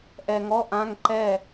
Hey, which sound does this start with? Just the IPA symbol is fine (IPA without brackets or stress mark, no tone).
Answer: ʔ